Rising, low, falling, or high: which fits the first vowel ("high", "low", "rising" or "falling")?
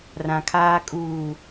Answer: low